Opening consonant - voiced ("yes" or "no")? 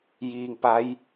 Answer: yes